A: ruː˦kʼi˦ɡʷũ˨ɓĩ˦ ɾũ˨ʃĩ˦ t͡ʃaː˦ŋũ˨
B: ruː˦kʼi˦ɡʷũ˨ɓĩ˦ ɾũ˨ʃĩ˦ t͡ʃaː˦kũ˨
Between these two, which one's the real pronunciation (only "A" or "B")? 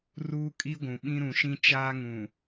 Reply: A